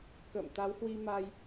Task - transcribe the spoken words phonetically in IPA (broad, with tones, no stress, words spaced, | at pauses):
kə̰ː˧˨m t̪a˨˦whwi˧ ma˧j